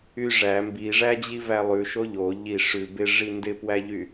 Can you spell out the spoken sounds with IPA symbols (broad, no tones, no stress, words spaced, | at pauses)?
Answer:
yʐæ mbiʐæd͡ʑi vælˠʉʃo ʎo ʎi ʂʉ bɪʐi ndɪpwæʎy